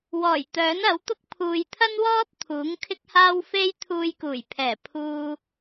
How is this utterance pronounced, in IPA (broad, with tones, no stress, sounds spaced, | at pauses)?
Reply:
w ɔː˨˩ j t̪ œː˨˥ n ɐ˨˥ w t̪ ʊ˥ k̚ pʰ uː˨ j t̪ʰ ɐ˥ n w ɔː˥ t̚ t̪ʰ uː˨˥ ŋ kʰ ɪ˥ k̚ h aː˥ w f e˥ j t̪ʰ uː˧ j k uː˨˩ j pʰ ɛː˨˩ pʰ uː˨